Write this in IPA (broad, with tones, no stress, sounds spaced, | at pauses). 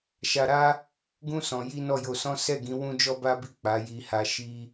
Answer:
ʃ a˧ ɾ a˦ | ɡ ũ˦ s ɔ̃˧ j i˦ n ɔ˦˨ j o˧ s ɔ̃˦ s ɛ˦˨ ɡ ĩ˨˦ w ũ˦ d͡ʒ ɔ˦ b a˦ b i˦˨ k͡p a˨˦ j i˧ h a˧ ʃ i˧